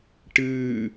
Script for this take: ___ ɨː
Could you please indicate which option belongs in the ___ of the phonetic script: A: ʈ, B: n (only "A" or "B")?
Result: A